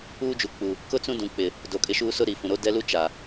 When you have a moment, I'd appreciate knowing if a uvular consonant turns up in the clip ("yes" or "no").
no